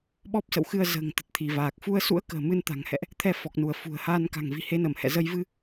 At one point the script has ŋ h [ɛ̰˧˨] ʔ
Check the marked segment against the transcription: correct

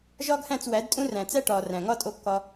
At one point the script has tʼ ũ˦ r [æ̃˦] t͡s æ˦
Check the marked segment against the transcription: incorrect: æ̃˨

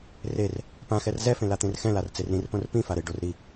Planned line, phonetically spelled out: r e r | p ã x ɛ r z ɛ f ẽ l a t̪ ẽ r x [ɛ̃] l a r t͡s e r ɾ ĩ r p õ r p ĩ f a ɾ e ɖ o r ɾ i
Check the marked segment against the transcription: correct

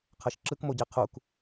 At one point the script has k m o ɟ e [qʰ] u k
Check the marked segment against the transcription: correct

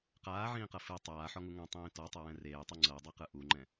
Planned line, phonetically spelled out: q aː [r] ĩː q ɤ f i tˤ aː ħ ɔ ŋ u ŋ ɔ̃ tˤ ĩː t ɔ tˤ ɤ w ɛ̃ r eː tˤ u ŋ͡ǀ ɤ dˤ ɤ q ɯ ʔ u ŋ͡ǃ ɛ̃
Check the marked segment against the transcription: incorrect: ʕ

